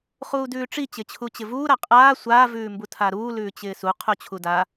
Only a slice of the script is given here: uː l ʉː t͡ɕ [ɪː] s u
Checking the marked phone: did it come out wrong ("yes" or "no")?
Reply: no